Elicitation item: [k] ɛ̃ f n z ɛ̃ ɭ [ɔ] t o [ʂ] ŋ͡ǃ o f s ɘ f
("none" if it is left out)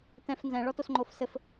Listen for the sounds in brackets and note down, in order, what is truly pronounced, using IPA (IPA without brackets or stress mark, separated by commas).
t, ɔ, s